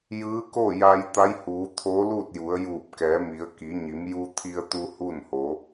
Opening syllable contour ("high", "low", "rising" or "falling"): rising